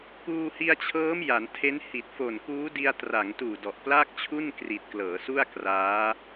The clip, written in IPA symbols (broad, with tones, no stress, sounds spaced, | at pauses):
k uː˧ h i˧ a̯ t͡ɕʰ ɤː˦˥ m j a˩˦ n tʰ e˦˥ n h i˨˩ t̚ f o˨˩ n k uː˦˥ d i˧ a̯ t r a˩˦ ŋ t uː˨˩ d ɔ˨˩ ʔ p l a˥˩ k̚ t͡ɕʰ u˥˩ n k r i˨˩ t̚ k l ɤː˩˦ s u˥˩ a̯ k r aː˦˥